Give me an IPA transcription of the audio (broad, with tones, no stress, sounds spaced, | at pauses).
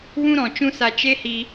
w ũ˦ ɾ ɔ̃˨ t͡ʃ ũ˦ s a˧ t͡ʃ e˦ h i˧